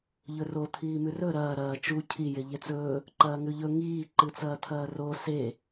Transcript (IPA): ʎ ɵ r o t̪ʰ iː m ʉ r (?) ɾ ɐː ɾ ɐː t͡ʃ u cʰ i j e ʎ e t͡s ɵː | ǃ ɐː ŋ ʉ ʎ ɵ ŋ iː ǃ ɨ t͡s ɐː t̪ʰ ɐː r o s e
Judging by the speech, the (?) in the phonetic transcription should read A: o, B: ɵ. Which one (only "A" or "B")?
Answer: B